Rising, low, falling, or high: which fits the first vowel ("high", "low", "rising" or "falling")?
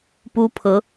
high